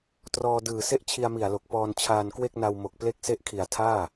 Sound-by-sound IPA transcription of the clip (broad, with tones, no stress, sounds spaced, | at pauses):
t r ɔː˧ d ɯː˨˩ s e˥˩ ʔ t͡ɕʰ i˧ a̯ m i˨˩ a̯ l o˨˩ k̚ p ɔː˧ n t͡ɕʰ aː˧ n k w e˥˩ k̚ n a˧ w m o˨˩ k̚ p l e˥˩ k̚ s e˥˩ ʔ kʰ i˨˩ a̯ tʰ aː˥˩